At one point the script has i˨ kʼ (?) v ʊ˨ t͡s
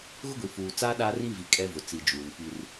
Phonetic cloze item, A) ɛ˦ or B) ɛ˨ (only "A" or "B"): A